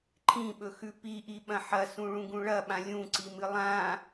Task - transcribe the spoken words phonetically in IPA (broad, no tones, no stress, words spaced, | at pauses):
ǃʰĩɓɵxʉ piʔiɓɐ̃ ħɐsũɭũɡũ ɭɐɓã lʲũǀimɨ lˠã